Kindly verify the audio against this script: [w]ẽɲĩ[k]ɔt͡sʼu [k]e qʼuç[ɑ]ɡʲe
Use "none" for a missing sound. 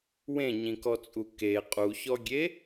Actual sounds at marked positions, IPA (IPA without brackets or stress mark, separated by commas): w, k, k, ɔ